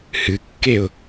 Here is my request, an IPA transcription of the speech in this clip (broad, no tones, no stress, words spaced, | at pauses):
hɨkːeʊ̯